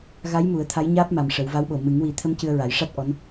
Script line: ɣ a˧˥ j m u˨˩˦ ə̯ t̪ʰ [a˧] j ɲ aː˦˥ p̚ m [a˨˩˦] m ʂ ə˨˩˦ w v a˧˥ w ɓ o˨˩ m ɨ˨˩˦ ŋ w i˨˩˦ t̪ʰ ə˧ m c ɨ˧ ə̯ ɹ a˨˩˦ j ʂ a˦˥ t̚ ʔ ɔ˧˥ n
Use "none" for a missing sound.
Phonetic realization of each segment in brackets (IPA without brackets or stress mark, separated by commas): a˧˥, a˨˩